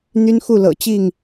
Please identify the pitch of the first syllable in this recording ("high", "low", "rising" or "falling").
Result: high